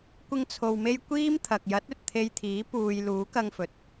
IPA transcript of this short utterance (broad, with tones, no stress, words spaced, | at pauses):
kʷɪ˧ŋ t͡sʰo˨wme˧j kʷiː˥m t̪ʰɐ˨k̚jɐ˨˥t̚ ɵ˨t̚t̪ʰe˧jt̪ʰiː˨˥ puː˨j luː˨˥kɐ˧ŋfɵ˨˥t̚